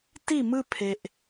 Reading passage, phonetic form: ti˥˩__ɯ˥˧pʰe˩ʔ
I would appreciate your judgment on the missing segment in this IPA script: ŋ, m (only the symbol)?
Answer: m